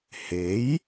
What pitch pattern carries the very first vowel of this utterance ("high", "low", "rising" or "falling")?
rising